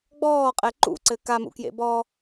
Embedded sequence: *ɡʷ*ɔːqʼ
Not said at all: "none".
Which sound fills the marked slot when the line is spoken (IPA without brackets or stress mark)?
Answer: ɡ͡b